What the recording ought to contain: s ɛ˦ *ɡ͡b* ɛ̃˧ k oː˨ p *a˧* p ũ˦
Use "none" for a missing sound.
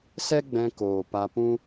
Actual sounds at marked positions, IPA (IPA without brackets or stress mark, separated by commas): ɡ͡b, a˧